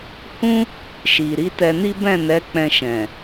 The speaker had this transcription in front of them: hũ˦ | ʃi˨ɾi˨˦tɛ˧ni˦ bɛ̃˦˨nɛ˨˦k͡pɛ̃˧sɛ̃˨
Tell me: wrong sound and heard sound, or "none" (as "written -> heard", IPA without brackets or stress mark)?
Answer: s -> ʃ